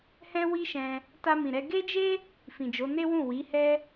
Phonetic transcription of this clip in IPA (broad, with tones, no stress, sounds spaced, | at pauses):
h ɛ̃˦ w i˦ ʃ ɛ̃˧ | t a˧ m ĩ˨ ɾ ɛ˧ ɡ e˦ d͡ʒ e˦ | f ĩ˨ d͡ʒ o˨˦ n e˦ w ũ˦˨ w i˨˦ h ɛ˦